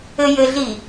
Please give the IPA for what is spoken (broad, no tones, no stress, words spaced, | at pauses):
ɘjɘɮi